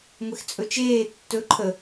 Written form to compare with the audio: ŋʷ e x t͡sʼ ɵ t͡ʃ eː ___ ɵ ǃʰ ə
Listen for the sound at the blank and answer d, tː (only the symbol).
tː